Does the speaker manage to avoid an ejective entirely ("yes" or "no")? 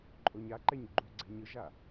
no